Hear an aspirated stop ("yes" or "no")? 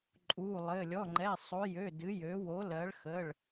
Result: no